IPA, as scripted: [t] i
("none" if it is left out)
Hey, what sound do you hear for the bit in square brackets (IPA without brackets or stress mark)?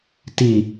t